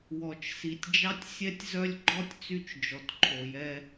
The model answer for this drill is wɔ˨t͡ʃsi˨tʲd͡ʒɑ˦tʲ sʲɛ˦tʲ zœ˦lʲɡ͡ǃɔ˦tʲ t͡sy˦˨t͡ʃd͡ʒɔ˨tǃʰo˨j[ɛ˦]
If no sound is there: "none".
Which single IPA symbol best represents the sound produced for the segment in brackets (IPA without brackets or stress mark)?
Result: ɛ˦